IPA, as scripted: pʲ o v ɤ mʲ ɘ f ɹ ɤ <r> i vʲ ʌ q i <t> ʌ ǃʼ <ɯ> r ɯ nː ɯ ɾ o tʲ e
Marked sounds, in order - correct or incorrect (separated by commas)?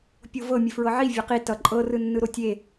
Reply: incorrect, correct, incorrect